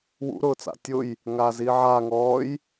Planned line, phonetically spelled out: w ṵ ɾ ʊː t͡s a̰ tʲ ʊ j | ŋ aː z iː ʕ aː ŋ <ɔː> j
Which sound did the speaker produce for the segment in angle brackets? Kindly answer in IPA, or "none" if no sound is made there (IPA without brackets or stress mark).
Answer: ɔː